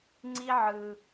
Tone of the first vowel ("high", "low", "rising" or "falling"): high